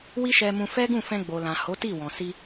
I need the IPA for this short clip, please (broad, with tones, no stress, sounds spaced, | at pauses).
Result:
w i˦ ʃ ɛ˧ m ũ˧ f ɛ˦ ɡ ũ˦˨ f ɛ̃˧ ɡ͡b o˨ l ã˨ h o˨˦ t i˦˨ w ɔ̃˨ s i˧